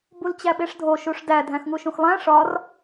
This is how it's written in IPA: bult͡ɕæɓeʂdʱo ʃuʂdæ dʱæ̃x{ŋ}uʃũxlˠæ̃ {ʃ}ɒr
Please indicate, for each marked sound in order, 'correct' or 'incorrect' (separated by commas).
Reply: correct, incorrect